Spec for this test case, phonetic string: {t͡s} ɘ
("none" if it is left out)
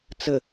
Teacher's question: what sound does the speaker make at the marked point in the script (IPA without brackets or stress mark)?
t͡s